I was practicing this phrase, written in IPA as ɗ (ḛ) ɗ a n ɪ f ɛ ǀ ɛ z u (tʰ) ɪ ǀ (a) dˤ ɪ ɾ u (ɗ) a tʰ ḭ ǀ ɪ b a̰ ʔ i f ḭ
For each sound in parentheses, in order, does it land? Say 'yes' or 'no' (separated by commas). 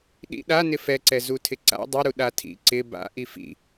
no, yes, no, yes